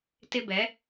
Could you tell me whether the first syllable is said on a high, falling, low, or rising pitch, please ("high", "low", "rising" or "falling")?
high